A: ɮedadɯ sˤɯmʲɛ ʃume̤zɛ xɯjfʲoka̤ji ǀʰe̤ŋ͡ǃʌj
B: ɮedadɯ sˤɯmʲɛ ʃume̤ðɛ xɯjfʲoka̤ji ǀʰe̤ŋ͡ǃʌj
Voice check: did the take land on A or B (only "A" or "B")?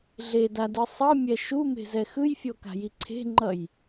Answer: A